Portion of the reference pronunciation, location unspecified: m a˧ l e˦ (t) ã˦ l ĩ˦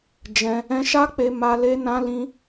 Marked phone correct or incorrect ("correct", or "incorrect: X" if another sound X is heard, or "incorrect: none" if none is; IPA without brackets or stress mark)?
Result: incorrect: n